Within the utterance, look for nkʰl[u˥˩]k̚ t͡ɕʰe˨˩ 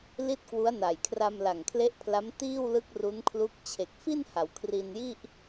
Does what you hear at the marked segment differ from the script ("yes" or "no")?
yes